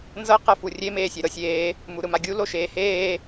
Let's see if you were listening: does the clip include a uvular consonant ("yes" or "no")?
yes